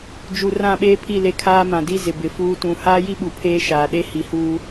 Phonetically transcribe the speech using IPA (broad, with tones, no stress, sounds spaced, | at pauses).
d͡ʒ u˨ r ã˦˨ ɓ eː˦ pʰ i˦˨ l e˦ kʰ aː˦ m ã˨ d i˦ z ɪ˨ b ɪ˨ f uː˦ t ũ˨ h aː˦ j i˦ ɓ u˨ pʰ eː˦ ʃ aː˨ ɗ e˦ h i˨ h uː˦